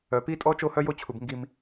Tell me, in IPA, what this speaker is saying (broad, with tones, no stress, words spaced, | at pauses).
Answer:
œ˧pi˥tʼɔ˥ t͡ʃo˥hœ˥jo˥t͡ɕʰu˧b ŋɡi˧m